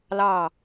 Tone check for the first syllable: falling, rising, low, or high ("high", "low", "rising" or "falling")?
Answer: falling